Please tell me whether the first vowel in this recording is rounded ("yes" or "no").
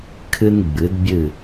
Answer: no